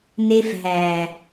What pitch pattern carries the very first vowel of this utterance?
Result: high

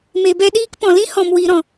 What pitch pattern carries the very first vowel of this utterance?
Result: low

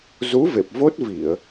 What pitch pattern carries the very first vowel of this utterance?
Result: rising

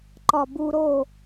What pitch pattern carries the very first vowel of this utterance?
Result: falling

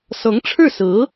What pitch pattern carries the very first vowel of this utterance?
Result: rising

